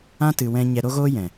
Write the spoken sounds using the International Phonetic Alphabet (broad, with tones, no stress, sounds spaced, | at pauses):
ã˦ t ɨ˧ w ɛ̃˦ ɲ ɛ˧ ɾ o˧ ɣ oː˧ j ɛ̃˨